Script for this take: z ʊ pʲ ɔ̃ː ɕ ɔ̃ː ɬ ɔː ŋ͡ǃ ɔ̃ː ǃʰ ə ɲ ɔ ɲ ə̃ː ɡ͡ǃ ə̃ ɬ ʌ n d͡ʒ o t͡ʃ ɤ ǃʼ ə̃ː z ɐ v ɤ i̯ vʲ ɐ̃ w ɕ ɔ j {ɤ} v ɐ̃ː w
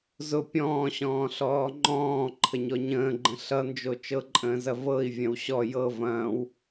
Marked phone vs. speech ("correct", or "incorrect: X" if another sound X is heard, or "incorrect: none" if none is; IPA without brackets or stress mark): correct